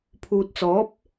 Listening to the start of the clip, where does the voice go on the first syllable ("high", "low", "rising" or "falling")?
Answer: low